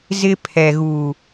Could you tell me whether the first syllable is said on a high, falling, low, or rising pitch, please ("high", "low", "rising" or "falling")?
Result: high